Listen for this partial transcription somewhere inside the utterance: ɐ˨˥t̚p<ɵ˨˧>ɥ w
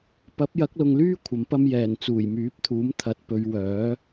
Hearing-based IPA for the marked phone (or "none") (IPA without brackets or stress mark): ɵ˨˧